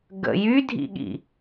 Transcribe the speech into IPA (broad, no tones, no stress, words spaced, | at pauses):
ɡə̰ jydʱḭɠḭ